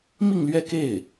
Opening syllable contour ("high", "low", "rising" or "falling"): falling